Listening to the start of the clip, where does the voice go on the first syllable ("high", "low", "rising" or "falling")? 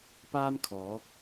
high